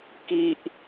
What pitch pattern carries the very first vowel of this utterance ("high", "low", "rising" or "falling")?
low